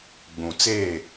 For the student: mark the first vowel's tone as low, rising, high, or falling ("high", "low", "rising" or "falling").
low